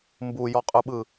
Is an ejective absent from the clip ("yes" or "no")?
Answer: no